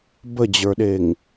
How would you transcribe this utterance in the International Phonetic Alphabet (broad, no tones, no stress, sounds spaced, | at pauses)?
b ə d͡ʑ ə˞ ɗ e ŋ